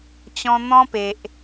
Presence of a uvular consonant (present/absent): absent